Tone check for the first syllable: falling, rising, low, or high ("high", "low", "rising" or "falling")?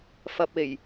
low